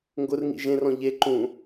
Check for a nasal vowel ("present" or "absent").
present